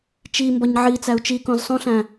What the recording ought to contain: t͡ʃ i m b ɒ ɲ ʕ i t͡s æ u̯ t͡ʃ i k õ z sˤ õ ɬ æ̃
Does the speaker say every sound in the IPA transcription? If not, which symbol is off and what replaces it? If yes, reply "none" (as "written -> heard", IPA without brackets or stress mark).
none